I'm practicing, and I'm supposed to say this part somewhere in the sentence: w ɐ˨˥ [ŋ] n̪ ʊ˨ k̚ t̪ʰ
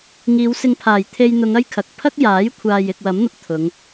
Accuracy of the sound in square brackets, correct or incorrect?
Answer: incorrect: m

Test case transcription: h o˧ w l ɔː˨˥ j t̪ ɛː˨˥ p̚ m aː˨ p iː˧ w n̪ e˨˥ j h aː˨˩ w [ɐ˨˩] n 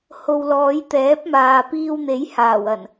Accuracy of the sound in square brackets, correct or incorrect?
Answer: correct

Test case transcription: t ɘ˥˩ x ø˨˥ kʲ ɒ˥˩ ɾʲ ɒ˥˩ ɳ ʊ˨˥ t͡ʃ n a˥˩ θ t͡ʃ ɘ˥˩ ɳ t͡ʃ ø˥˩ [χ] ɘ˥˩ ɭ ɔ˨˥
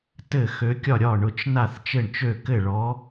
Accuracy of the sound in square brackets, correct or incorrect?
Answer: incorrect: k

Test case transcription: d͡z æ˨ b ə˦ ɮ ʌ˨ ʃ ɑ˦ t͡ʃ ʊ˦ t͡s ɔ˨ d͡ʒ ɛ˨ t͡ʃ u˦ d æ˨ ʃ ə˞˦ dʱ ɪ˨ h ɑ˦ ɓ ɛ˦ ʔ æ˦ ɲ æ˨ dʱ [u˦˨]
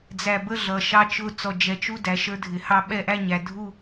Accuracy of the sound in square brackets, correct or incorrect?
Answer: correct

